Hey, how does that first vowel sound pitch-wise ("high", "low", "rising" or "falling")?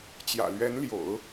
low